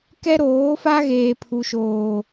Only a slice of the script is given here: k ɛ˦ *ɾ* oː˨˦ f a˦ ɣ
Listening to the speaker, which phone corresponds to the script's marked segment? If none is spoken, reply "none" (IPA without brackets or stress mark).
ɾ